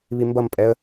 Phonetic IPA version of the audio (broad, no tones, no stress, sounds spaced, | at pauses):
β i m b ʌ m pʼ ɛ ə̯